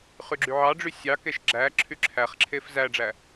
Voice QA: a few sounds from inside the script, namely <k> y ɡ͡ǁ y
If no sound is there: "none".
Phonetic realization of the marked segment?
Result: χ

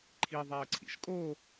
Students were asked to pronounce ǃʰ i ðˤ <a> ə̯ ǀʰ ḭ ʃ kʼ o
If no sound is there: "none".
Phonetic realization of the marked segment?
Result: a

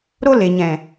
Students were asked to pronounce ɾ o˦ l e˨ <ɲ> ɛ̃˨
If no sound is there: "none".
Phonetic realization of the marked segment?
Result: ɲ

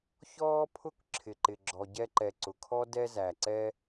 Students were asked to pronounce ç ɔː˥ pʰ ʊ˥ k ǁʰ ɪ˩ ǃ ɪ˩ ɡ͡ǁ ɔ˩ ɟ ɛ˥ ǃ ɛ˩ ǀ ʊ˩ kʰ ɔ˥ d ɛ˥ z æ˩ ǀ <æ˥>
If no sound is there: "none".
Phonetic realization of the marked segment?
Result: ɛ˥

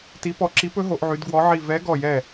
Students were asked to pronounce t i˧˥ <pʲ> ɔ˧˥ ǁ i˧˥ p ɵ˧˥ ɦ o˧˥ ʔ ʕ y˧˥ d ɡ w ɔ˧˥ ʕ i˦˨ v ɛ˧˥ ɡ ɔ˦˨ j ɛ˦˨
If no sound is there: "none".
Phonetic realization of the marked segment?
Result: p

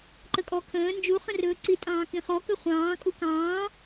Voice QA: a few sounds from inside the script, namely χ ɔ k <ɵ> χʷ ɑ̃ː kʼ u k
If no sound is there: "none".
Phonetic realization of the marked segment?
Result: ɵ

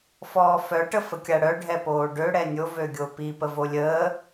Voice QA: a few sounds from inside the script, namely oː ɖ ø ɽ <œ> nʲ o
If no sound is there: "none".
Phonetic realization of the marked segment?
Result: ɛ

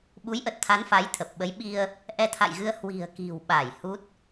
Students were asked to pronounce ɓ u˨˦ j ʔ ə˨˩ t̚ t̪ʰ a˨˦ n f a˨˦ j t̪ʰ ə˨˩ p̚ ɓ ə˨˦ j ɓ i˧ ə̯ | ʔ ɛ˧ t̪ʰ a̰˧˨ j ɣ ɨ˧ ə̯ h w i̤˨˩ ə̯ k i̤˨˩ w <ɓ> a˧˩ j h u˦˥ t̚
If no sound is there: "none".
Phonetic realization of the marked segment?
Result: ɓ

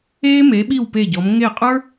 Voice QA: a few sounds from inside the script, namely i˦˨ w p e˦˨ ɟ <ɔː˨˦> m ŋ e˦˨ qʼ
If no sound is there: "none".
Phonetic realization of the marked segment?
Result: ɔ˨˦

